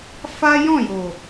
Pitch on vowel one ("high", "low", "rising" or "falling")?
high